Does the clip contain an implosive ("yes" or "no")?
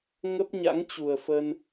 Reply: no